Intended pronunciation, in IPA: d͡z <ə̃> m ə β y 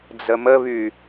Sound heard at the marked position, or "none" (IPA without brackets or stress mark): ə